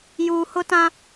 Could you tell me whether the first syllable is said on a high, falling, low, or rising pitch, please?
low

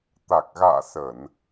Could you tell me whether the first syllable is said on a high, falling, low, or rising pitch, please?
low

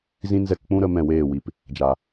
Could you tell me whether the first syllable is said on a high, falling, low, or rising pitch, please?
high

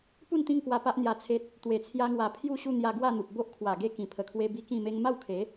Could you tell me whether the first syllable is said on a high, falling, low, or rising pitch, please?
falling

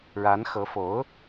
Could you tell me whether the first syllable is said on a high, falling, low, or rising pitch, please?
rising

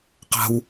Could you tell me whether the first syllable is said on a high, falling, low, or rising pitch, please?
high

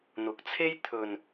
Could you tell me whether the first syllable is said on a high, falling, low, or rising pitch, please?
rising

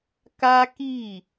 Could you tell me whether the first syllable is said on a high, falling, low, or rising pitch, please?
high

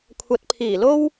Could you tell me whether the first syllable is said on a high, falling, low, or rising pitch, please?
rising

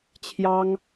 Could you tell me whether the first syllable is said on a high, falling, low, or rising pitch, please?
high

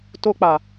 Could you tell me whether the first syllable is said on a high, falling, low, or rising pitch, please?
high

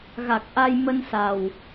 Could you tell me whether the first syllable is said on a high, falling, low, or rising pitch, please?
low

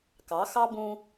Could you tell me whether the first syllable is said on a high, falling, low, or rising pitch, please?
rising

